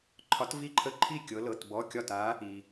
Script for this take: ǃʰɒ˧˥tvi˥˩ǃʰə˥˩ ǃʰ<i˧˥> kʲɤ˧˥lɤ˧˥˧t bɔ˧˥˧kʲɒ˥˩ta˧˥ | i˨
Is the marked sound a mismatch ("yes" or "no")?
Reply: yes